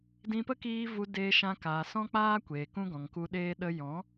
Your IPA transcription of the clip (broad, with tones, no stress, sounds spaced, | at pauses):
d ĩ˧ p ə˦ k iː˧ v u˧ d eː˧ ʃ ã˧ k aː˨ s ɔ̃˦ k͡p aː˦ kʷ eː˨ k ũ˦ ɡ ɔ̃˨ ŋ k u˧ ɗ eː˦ ɗ ə˧ j ɔ̃˨˦